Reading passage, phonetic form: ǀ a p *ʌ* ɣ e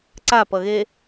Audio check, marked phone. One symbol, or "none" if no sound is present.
ʌ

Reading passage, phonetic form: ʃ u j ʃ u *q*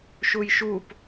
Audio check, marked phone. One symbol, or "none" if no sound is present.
p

